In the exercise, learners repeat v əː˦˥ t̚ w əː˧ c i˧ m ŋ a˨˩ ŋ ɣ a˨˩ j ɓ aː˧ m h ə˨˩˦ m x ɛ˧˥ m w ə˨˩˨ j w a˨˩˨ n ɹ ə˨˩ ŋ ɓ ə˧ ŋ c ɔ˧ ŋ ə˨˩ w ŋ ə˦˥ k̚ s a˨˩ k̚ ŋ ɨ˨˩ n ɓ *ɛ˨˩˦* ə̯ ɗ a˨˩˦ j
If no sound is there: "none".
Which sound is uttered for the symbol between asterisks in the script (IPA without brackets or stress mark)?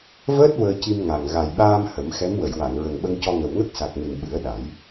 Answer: ɨ˨˩˦